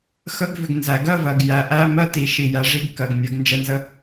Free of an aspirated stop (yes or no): yes